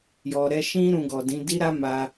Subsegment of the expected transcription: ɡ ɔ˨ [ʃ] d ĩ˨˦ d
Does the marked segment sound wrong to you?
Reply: yes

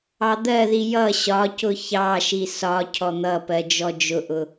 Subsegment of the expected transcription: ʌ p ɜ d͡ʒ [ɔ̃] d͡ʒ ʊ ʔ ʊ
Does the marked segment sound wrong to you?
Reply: yes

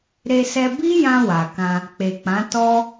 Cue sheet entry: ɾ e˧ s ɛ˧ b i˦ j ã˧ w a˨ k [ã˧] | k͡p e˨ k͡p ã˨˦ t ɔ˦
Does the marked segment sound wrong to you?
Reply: no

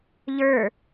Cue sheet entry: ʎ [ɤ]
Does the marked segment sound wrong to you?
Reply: yes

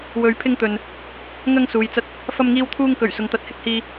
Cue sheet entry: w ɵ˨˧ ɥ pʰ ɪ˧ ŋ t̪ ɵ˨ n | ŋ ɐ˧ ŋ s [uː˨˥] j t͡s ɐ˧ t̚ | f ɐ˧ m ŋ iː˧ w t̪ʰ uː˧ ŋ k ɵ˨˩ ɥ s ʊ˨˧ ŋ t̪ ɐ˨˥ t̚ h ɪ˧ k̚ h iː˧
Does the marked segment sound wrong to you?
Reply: yes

